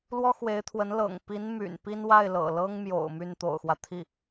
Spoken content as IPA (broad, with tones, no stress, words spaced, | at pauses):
lwɔ˥xwe˧˥ɪ̯t̪ʰwə˧˥n lɤ̰˨˩ŋ pi˧˥nmy̰˨˩n pi˥n wa˥˩ɪ̯lɤ̰˨˩lɤ˥ŋmjo̰˨˩ʊ̯ my˥˩nt̪o̰˨˩ʊ̯xwä˦ t̪ʰi˥˩